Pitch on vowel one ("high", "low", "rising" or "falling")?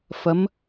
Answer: rising